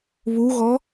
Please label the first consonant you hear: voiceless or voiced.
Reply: voiced